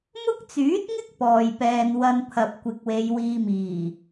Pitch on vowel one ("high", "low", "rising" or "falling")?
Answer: high